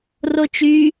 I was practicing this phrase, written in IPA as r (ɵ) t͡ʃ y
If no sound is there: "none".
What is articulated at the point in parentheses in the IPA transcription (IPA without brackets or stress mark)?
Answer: o